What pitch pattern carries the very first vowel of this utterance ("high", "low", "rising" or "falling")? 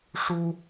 high